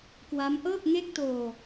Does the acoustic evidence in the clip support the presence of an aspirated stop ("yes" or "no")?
no